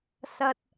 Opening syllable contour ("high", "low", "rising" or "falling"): low